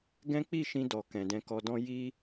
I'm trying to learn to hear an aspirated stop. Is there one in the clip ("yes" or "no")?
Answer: no